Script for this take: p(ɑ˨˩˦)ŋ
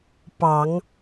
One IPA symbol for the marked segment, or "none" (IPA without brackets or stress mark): ɑ˨˩˦